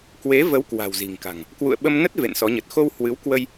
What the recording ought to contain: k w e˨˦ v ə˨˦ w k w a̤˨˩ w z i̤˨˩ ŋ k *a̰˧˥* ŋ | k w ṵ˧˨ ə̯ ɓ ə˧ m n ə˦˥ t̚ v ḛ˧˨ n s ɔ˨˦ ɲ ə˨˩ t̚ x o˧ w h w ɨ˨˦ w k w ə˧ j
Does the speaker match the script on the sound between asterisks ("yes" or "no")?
no